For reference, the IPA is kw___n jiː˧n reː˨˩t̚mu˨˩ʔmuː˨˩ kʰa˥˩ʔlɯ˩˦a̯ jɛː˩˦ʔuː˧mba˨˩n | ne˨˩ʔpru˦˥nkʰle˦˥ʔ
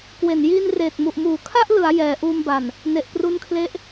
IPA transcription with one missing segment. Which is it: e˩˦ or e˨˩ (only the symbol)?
e˨˩